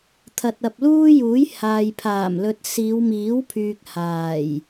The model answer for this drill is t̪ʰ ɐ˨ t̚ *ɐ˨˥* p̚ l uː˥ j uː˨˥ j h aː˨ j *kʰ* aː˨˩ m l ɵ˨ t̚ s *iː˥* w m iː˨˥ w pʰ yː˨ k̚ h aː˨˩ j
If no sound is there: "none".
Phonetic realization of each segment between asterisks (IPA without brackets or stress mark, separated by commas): ɐ˨, pʰ, iː˨˧